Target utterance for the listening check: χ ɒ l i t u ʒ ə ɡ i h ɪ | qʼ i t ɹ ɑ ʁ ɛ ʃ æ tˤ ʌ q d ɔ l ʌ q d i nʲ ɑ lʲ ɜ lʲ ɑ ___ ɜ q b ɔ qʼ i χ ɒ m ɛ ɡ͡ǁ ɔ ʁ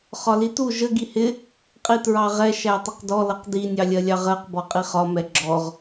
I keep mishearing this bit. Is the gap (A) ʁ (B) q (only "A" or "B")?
A